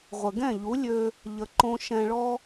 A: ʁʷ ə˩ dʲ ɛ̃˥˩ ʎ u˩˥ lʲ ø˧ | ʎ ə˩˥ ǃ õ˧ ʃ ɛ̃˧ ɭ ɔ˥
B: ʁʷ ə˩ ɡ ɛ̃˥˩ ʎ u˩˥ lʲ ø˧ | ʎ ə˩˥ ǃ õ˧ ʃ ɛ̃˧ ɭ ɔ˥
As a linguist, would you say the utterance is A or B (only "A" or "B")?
B